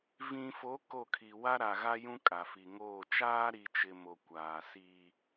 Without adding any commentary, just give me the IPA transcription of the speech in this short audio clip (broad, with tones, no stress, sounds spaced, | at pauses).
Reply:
v ĩ˨ f o˨˦ k o˦˨ kʰ i˨ w a˦ ɾ a˨ ɣ a˦ j ũ˦ kʼ a˨ f i˨ ŋ oː˦˨ t͡ʃ aː˦ ɾ i˨ t͡ʃ ɪ˨ m o˨ kʷ aː˨ s iː˦